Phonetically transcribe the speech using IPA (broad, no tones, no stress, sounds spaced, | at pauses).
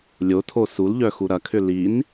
lʲ o tʰ o s u l ʎ œ x u ɾ ɐ kʰ ʏ l i n